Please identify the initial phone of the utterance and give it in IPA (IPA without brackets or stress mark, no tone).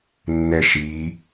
nː